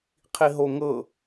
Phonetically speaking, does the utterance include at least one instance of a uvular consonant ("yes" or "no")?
yes